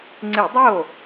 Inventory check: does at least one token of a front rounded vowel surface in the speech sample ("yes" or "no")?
no